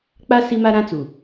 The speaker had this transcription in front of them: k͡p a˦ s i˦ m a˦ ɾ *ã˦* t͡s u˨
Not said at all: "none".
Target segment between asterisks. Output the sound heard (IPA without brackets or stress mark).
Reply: ã˦